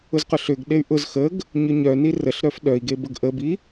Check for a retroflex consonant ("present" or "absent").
absent